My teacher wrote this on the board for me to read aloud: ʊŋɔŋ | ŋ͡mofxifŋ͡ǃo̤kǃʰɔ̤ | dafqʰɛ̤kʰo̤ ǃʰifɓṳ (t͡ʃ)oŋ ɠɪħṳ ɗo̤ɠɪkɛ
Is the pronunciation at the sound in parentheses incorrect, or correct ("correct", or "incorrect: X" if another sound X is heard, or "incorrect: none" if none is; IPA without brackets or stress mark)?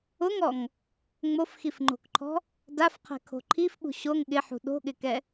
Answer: incorrect: ɕ